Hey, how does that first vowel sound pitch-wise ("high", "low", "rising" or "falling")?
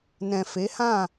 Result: low